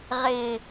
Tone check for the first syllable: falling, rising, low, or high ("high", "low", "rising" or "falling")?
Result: low